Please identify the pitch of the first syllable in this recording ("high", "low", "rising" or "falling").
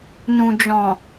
low